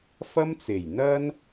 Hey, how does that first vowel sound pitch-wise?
high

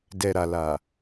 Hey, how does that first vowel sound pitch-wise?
low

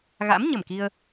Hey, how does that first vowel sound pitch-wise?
rising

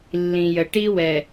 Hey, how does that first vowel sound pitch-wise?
low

